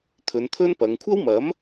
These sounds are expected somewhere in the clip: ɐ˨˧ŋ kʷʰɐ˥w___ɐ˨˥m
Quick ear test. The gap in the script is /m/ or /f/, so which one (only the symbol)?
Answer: m